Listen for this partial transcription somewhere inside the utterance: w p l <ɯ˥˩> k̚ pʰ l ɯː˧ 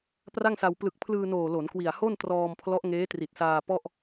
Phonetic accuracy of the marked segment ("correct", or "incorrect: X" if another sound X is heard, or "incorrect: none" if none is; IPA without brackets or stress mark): incorrect: ɯ˨˩